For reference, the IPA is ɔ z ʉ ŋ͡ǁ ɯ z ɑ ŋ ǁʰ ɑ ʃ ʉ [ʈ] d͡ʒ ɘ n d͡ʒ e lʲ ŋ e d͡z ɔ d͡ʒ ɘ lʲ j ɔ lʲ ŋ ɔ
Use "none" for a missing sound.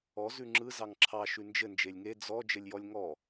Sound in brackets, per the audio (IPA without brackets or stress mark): n